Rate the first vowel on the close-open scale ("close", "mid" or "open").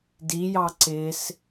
close